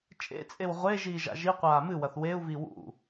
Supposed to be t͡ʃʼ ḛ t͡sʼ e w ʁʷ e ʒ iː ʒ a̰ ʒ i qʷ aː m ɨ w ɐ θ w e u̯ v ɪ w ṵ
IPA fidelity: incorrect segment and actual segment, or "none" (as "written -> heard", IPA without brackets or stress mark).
ɪ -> i